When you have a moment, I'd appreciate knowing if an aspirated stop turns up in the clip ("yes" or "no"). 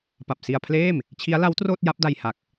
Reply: yes